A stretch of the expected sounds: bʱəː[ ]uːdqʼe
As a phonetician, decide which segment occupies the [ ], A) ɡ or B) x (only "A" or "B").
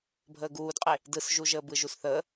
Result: A